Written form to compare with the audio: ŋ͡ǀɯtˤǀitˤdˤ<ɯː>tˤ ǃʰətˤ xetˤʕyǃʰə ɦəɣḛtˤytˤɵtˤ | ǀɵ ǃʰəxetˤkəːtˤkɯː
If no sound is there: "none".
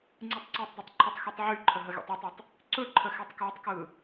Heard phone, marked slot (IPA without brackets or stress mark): ɯ